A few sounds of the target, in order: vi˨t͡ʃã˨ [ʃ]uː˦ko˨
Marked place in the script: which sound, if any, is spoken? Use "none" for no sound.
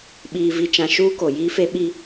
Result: ʃ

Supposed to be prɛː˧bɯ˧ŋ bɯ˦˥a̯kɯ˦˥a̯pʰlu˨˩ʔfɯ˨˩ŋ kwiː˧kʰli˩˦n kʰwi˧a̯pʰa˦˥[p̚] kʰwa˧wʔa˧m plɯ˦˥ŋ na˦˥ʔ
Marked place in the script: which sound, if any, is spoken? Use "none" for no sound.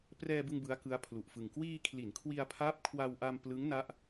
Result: p̚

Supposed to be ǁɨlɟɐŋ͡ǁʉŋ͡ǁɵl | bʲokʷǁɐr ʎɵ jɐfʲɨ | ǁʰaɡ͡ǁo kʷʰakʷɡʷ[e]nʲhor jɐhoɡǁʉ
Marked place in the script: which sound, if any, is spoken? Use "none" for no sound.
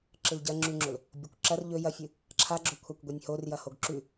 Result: e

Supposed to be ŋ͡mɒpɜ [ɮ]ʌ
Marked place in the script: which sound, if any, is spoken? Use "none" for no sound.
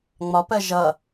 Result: ʒ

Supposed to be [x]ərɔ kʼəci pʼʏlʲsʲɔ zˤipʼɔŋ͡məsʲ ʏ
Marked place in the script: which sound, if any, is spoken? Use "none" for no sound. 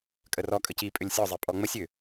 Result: kʼ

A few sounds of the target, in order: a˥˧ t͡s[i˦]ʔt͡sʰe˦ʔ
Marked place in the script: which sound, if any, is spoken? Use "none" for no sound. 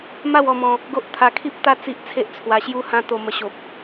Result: i˦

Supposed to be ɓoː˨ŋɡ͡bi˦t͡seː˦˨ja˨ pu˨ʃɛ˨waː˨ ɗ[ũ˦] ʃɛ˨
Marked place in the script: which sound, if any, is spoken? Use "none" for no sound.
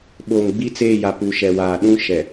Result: ũ˦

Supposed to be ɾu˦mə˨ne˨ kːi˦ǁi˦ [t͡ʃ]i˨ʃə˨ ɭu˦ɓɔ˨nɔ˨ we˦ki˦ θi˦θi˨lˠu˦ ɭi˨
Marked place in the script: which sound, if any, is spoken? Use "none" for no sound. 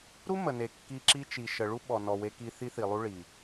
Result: t͡ʃ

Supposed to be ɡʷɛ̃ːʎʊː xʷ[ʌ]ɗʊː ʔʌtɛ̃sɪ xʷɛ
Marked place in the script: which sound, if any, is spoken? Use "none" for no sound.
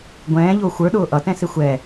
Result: ə˞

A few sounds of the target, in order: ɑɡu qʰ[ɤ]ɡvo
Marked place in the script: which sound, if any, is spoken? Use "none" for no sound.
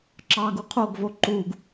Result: o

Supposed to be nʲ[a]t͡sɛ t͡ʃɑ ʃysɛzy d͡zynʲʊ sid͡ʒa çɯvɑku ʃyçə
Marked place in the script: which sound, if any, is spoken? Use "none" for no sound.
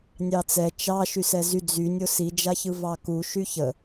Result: ɑ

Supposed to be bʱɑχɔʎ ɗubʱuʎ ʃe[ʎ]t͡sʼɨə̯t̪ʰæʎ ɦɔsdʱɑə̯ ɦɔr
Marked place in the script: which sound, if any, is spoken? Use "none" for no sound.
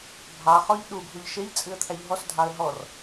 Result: ʎ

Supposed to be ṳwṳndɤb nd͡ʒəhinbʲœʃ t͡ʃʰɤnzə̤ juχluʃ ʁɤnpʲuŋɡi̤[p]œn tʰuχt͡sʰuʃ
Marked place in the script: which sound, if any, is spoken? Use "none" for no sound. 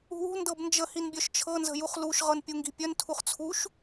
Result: pʲ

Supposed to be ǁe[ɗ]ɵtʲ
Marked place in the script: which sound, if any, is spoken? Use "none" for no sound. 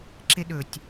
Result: ɗ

